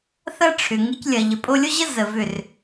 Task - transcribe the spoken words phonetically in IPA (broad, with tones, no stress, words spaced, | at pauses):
θɐ˦ʈ͡ʂʰʏ˨ ŋɨ˧clʲɐ˨ ʎə˨pʼo˧lʲo˦ʑə˦ zə˨ vʏ˦˨r